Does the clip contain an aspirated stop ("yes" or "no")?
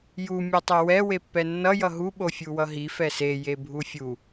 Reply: no